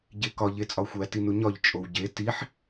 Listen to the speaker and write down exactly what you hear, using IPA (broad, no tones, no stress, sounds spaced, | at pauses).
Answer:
ɟ e k ɒ ʎ e t͡sʼ ɒ xʷ æ t i n u ɲ ɒ ʎ t͡ʃʼ o w ɟ e t i ħ